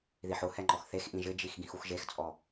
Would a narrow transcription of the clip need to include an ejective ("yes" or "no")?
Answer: yes